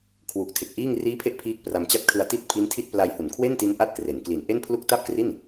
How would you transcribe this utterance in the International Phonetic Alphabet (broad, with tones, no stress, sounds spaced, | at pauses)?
kʰ w u˨˩ k̚ tʰ e˨˩ k̚ ʔ iː˥˩ ŋ r iː˦˥ pʰ e˦˥ ʔ pʰ iː˥˩ k̚ p r a˧ m t͡ɕ a˥˩ t̚ kʰ ɯ˧ a̯ t i˥˩ t̚ pʰ i˦˥ n tʰ i˥˩ t̚ p l a˧ j h u˨˩ n kʰ w e˥˩ n t i˦˥ n ʔ a˥˩ t̚ k r e˩˦ n k l i˨˩ n ʔ e˥˩ n pʰ l u˥˩ k̚ t a˥˩ p̚ k r i˥˩ n